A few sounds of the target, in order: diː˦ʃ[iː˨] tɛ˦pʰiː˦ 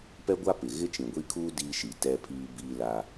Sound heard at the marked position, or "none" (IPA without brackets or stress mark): i˨